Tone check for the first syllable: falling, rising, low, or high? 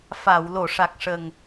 low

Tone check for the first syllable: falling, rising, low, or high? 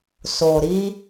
low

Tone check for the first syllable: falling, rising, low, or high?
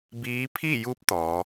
rising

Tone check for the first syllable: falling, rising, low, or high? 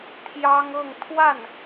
high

